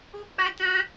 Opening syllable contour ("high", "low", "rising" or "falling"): high